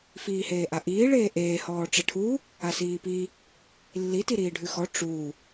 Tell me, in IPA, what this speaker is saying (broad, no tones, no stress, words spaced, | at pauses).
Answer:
fiːheːʔaʔiː ɭeːʔeː hɔːʈ͡ʂəʈʰu | asiːpi | lːi tiɾiːɖʱʉxɔ ʈ͡ʂu